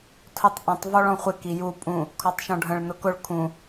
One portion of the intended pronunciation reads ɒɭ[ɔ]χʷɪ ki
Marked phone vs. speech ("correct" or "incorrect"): incorrect